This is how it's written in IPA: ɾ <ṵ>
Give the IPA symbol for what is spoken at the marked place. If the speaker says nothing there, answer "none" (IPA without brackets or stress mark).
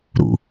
ṵ